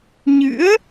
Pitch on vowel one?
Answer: rising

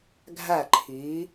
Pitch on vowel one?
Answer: falling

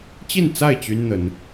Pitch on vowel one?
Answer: falling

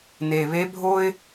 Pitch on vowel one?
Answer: low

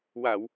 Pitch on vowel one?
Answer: low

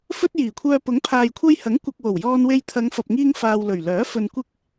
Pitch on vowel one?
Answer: high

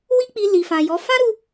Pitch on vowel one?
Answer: high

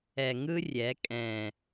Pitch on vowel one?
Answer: low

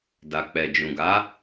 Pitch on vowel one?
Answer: low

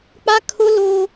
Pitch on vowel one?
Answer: high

